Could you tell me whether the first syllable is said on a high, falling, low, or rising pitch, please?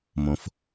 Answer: low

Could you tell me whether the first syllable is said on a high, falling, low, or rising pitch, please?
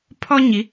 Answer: high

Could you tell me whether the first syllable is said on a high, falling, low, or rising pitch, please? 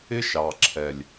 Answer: high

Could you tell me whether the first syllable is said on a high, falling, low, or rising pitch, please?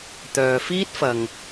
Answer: low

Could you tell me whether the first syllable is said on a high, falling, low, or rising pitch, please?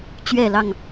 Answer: falling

